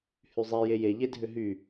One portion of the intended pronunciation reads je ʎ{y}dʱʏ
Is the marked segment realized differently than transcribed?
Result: yes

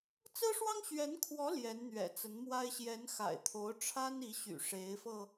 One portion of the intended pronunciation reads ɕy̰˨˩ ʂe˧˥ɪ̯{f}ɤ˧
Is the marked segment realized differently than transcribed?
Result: no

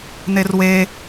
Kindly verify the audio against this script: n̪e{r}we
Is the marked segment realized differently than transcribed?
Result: no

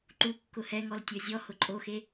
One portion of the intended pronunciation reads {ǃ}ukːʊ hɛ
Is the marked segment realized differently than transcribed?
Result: no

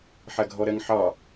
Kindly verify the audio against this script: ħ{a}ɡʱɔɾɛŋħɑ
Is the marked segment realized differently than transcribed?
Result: yes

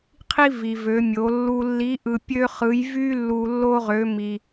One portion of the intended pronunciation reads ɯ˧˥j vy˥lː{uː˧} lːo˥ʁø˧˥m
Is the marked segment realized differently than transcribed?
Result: yes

